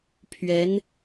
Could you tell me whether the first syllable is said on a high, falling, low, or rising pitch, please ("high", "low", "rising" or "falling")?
rising